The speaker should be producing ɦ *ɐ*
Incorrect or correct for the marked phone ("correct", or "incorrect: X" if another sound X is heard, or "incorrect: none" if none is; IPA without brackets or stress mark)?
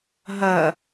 correct